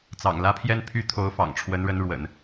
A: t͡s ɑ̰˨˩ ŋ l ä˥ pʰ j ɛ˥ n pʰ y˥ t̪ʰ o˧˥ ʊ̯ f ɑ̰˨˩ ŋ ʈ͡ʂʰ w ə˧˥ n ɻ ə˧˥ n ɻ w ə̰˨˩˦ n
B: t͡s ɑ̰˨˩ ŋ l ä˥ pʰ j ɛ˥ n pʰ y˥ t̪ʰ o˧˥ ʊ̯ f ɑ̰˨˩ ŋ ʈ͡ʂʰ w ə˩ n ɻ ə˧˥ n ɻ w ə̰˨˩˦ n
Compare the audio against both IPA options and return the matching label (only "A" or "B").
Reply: A